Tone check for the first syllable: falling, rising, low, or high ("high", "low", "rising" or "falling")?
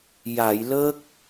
low